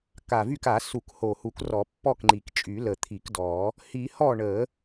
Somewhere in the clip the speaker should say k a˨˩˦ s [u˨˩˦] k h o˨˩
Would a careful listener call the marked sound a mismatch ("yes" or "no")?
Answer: no